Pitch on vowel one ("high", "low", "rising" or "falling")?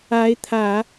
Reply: rising